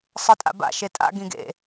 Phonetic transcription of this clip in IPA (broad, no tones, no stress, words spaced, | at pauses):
sˤɯtʼa̰ba̰ ʃetʼa̰ ɡĩɡḛ